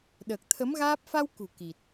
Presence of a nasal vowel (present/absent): absent